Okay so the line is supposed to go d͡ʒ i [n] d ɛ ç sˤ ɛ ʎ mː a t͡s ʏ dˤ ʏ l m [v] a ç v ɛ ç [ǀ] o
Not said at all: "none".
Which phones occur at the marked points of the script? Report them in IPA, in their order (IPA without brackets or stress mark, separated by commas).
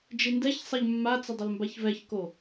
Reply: n, b, k